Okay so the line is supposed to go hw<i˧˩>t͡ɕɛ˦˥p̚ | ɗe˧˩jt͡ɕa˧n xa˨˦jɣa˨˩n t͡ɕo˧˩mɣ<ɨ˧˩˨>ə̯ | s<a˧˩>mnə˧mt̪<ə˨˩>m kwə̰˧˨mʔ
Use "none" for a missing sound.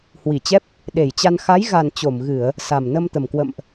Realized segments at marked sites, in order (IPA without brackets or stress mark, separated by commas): i˧˩, ɨ˧˩˨, a˨˩, ə˨˩